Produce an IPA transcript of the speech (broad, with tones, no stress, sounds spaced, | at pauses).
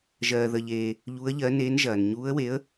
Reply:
ʒ ɜː˨ ð ə˨ ʎ eː˨ | ʎ u˧˥ ə̯ ʎ ɜ˧˥ n eː˧˥ n ʒ ɐː˨ n ɲ uː˧˥ ə̯ w e˧˥ ə̯